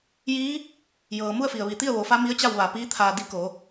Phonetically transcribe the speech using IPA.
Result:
j iː˧˥ | j ɤː˩ m u˥˨ ə̯ f i˩ ə̯ ʋ i˧˩ t̪ i˥˨ ə̯ ʋ o˩˧ f a˧˥ m i˧˥ ə̯ t͡ɕ a˥˨ w ʋ a˧˩ p iː˧˥ t̪ʰ aː˧ d i˧˥ k o˩˧

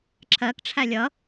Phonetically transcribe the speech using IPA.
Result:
ǁ ɜ k ʈ͡ʂʰ æ lʲ ʌ

